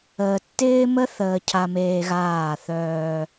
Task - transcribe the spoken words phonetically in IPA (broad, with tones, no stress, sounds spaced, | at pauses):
əː˨ tː ɪː˦ m ə˦ θ əː˨ cʰ a˨ m eː˨ ɣ aː˦˨ θ œː˦